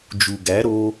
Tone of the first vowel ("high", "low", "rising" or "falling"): low